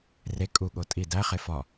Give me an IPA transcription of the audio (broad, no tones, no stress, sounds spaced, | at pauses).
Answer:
r e kʼ u ɠ o tʼ i d æ χ e f ɒ